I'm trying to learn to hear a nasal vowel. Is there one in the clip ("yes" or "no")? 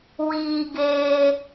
no